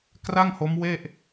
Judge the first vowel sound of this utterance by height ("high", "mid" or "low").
low